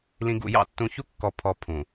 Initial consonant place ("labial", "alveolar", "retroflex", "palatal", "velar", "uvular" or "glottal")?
alveolar